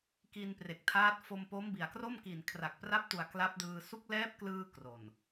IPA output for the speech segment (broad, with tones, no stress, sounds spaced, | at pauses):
k i˧ n p r e˨˩ k̚ tʰ aː˦˥ t̚ f o˧ m p o˦˥ m b i˨˩ a̯ k r o˥˩ m k i˨˩ n kʰ r a˨˩ k̚ p r a˦˥ p̚ t u˨˩ a̯ k l a˦˥ p̚ d ɯː˧ s u˦˥ k̚ l ɛː˦˥ p̚ k l ɯː˧ k r o˨˩ n